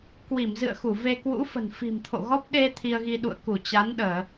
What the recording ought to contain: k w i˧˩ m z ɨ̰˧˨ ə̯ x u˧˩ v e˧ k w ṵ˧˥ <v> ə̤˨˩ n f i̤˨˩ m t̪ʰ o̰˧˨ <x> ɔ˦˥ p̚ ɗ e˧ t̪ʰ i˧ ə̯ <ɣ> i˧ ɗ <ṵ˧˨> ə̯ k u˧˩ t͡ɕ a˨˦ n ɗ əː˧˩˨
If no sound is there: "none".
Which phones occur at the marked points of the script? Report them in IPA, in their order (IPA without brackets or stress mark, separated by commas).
f, ɣ, ɣ, ṵ˧˨